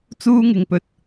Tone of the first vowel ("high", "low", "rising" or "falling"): high